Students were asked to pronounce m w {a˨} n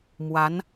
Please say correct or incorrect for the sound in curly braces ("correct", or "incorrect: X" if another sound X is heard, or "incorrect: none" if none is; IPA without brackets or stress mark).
incorrect: a˧˥